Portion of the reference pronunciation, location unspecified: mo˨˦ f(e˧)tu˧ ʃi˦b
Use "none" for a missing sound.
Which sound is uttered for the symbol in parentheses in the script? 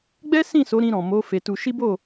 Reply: e˧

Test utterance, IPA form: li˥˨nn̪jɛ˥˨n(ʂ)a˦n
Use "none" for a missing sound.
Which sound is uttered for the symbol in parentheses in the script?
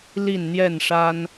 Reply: ʂ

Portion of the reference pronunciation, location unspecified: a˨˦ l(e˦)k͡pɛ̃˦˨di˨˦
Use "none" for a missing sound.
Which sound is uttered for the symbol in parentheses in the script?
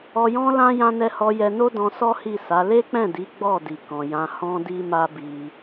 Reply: e˦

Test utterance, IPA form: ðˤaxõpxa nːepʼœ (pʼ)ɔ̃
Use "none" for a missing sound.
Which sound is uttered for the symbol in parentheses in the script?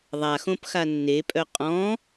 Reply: qʼ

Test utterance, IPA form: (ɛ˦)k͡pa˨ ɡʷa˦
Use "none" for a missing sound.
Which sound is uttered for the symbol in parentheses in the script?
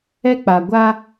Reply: ɛ˦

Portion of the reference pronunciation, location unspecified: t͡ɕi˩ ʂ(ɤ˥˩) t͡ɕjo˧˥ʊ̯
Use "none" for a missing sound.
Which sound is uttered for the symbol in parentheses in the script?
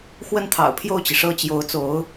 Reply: ɤ˥˩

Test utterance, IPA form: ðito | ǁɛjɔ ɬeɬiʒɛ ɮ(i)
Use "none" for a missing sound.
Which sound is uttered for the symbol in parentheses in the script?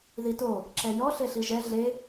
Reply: e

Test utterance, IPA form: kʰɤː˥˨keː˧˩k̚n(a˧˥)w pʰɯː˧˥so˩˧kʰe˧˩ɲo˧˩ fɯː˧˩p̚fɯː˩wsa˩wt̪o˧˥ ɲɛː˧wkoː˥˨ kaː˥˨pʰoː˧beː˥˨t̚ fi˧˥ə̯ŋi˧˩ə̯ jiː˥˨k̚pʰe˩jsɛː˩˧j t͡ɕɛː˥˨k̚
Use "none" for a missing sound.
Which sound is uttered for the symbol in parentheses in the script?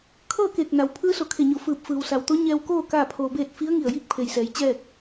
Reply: a˩˧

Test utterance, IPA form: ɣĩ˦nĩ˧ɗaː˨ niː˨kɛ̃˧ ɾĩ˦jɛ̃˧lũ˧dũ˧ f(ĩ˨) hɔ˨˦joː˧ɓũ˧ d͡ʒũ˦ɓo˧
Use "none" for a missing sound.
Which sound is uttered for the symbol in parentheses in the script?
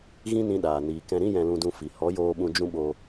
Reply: i˨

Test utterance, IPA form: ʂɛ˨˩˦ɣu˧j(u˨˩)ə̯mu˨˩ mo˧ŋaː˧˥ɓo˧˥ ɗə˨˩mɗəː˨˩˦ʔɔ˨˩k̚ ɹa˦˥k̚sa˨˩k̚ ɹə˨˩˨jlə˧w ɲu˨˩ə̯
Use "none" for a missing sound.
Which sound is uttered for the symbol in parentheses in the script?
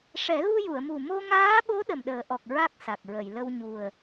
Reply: u˨˩˨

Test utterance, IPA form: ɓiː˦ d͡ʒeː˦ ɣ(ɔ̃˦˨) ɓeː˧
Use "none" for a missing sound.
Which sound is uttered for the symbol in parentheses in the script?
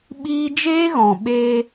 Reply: ɔ̃˨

